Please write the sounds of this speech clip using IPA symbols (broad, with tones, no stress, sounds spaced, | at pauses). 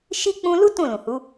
ʃ i˦ k͡p ũ˦ l u˦ t ũ˦˨ l ũ˨ h u˨˦